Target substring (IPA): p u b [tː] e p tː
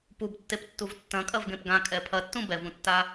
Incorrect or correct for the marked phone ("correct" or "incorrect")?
correct